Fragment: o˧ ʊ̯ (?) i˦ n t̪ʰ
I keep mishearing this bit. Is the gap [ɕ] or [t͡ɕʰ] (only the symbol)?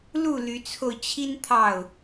t͡ɕʰ